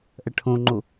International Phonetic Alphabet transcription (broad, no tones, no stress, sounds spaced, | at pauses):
ʔ ɐ ʈʰ õ ŋ͡ǃ o